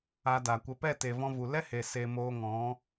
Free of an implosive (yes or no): yes